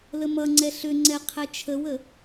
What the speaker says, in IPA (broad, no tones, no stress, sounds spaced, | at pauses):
l ə m ʌ ŋ͡ǀ ɛ ɬ ʏ ŋ͡ǀ ɛ qʰ ɛ t͡ʃʰ ə w ə